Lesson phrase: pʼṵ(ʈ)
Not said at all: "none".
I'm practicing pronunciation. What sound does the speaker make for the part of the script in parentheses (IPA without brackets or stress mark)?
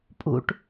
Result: ʈ